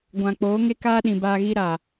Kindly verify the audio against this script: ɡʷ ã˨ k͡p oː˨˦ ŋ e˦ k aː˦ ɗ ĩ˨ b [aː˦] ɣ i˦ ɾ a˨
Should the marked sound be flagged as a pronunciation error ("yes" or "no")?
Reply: yes